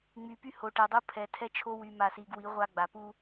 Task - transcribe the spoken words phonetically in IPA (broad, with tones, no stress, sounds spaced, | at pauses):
ŋ͡m y˨ p y˦ h o˨ ʈ ɛ˨ dˤ u˦ pʰ ɛ˨ tʰ ɛ˦ t͡ʃʰ o˦ w y˨ m a˨ s i˨ ɡ w i˨˦ ʁʷ a˦ ɡ͡b a˨ p u˦